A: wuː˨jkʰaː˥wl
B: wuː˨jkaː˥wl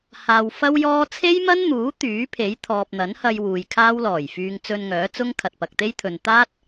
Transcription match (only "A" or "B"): A